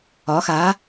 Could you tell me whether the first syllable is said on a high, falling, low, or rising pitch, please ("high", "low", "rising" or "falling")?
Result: rising